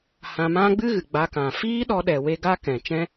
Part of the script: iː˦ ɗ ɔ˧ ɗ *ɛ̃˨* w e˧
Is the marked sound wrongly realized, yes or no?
yes